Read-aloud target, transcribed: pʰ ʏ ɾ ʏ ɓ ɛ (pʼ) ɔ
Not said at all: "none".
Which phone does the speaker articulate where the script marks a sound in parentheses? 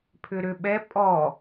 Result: pʼ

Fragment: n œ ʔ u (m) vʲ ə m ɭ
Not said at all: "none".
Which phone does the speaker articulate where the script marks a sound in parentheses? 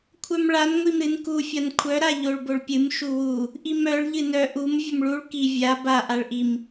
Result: m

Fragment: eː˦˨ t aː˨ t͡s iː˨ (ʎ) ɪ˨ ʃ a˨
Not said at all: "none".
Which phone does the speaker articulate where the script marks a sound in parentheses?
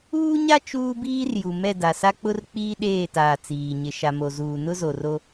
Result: ɲ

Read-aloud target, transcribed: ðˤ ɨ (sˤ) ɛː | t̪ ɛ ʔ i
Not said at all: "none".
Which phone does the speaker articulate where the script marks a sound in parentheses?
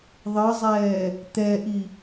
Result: zˤ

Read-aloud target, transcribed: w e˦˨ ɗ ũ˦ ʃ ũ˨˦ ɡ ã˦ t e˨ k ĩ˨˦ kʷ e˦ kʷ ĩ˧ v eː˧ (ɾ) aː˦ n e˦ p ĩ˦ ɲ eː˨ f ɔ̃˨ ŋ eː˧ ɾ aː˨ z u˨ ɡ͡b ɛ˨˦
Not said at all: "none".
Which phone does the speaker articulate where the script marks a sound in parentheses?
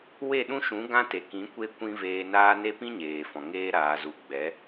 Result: n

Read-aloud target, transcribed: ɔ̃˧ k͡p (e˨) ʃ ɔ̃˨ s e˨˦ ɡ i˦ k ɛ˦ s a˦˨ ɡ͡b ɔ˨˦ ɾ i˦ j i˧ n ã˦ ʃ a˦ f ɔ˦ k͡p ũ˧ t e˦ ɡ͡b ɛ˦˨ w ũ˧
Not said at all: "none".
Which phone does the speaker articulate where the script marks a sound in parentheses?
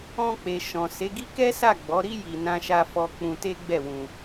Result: e˨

